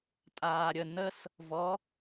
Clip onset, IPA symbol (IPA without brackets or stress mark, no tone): tʼ